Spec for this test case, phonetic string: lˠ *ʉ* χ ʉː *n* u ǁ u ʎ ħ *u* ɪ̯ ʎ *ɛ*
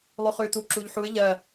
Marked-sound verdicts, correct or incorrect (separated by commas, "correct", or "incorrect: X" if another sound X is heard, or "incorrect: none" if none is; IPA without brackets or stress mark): correct, incorrect: t, correct, incorrect: ɜ